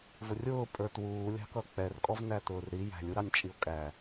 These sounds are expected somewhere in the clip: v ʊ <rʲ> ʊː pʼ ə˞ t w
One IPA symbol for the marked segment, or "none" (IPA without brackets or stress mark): rʲ